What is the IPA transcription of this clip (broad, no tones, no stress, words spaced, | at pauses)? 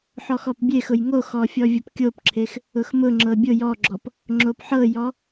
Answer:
ħɔxɔpbʲexʊj ŋoxɔ fʲɔvʲʊpkʲopǁʰex | ʊxmʊŋ͡ǁɤ bʲʊ jɔɡ͡ǁɔp | ŋ͡ǁopħɤjɔ